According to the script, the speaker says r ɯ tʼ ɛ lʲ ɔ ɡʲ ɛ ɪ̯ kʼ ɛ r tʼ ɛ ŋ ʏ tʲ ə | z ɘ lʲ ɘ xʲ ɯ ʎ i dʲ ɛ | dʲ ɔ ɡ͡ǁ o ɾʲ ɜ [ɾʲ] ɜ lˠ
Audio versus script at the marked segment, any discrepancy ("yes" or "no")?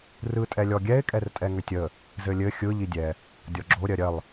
no